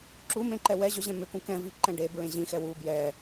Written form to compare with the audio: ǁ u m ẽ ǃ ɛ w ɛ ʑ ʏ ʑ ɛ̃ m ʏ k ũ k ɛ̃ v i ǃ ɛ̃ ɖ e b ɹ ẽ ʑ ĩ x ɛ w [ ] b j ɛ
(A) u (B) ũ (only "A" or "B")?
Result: A